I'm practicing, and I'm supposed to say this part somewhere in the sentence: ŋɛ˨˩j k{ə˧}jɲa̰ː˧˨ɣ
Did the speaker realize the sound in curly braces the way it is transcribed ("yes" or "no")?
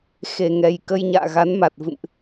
yes